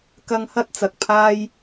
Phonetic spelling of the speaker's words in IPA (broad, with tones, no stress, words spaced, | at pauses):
kɐ˧ŋhɐ˥t̚ t͡sɐ˨k̚pʰaː˥j